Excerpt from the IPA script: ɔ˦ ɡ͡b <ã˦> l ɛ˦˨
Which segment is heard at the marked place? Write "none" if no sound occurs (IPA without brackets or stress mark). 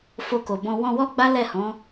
a˦